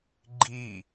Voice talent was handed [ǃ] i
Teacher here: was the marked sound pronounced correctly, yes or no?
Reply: no